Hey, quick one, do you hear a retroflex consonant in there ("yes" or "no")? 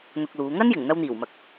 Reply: no